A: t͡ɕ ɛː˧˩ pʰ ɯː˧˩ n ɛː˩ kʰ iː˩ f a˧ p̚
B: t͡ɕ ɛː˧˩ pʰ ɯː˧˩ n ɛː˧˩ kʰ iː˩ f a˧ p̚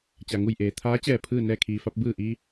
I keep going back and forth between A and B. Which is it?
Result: B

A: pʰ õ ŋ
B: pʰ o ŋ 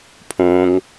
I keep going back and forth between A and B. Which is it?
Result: A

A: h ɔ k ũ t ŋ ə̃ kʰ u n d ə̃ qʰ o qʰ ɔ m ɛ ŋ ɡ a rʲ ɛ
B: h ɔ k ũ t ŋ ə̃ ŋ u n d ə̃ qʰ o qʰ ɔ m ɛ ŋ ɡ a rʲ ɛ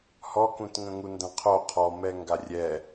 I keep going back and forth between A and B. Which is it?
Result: B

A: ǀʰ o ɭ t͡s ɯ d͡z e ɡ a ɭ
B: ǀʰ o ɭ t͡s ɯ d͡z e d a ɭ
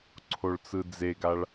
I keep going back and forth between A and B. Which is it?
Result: A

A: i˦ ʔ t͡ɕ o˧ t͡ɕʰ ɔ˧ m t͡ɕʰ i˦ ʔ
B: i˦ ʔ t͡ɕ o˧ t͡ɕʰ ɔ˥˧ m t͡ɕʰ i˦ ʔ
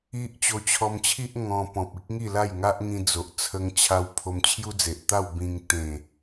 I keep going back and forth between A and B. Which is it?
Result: A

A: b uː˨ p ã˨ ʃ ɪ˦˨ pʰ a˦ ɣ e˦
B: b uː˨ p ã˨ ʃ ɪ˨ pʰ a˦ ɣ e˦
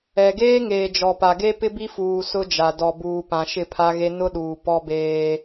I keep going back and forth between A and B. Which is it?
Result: A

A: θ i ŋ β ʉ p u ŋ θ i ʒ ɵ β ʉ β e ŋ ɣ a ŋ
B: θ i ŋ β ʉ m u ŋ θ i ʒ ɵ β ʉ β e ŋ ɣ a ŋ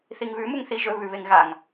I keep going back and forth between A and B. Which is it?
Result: B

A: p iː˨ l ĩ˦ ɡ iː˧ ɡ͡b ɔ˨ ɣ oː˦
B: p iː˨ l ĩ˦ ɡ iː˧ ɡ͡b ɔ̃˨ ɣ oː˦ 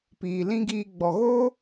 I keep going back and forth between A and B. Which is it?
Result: A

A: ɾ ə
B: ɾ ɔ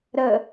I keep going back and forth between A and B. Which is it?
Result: A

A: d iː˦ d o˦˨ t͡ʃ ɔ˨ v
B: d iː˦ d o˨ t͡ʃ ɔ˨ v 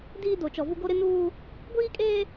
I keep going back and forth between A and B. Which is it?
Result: B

